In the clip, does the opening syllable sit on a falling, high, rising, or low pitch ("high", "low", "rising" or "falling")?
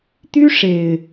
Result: high